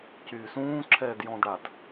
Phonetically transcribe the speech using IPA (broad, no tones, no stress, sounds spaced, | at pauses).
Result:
c yː s ũː ǁʰ ɛː d j ɔ̃ d ɽ a d